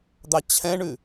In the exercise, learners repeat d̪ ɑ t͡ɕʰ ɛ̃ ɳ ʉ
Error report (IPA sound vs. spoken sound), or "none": none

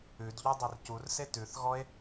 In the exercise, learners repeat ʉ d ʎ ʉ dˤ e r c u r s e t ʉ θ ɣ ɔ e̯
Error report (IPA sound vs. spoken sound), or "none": none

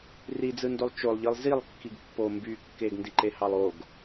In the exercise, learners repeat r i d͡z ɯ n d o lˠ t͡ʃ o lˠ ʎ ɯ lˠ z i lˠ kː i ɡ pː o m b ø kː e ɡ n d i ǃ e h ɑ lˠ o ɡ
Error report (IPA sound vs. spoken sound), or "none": ø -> y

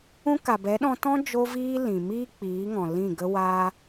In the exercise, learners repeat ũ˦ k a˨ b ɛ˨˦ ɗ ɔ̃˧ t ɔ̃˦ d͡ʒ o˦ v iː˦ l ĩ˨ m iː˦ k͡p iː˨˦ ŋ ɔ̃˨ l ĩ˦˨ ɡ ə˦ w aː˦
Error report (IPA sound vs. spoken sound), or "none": none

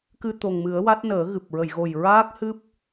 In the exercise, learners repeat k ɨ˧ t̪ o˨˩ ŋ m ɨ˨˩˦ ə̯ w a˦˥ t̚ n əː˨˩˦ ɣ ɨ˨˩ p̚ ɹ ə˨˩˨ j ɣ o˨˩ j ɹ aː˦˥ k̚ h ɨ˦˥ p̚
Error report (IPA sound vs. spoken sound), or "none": none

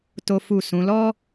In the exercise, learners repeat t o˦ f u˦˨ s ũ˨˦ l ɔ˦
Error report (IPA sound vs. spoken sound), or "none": none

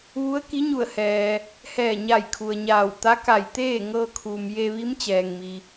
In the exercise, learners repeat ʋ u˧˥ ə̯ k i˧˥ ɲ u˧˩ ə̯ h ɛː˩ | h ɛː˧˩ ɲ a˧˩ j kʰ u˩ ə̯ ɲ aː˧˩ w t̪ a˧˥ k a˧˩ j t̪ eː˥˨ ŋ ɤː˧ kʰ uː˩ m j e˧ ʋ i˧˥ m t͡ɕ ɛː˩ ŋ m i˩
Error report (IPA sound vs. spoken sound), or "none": none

